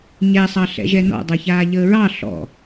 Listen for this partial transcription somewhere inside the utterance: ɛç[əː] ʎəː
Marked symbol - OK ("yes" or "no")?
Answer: no